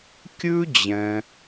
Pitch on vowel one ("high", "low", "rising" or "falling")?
high